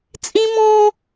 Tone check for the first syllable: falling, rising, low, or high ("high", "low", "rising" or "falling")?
high